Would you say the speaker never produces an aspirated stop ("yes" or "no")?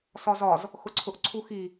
no